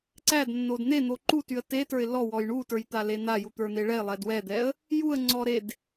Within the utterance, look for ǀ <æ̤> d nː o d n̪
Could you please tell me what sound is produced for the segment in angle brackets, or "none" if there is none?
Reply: æ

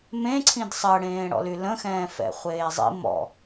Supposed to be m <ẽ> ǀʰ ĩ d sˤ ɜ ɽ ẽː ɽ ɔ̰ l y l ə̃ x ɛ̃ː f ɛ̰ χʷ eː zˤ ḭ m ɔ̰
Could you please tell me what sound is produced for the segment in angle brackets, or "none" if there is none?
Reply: ẽ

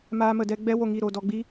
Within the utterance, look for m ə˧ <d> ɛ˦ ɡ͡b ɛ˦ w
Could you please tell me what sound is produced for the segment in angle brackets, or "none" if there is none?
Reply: d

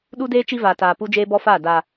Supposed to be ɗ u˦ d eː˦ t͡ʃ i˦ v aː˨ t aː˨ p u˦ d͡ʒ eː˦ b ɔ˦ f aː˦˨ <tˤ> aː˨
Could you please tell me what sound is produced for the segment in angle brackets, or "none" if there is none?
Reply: d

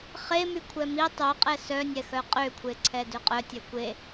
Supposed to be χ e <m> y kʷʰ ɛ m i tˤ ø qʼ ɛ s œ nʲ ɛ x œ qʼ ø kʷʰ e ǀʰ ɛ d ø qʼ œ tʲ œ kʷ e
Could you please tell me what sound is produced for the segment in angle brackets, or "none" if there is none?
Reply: m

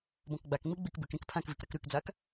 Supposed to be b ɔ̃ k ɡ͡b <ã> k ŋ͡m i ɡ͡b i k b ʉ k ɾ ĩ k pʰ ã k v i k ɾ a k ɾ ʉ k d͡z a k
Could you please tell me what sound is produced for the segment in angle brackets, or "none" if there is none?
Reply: a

